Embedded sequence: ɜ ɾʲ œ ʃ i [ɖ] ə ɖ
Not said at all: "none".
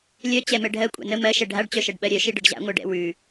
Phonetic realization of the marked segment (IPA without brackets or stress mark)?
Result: ɖ